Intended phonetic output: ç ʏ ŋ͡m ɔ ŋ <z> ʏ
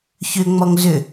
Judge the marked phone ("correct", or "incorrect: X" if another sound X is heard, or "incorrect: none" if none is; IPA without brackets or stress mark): correct